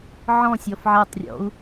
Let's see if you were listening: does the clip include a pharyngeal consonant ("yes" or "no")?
yes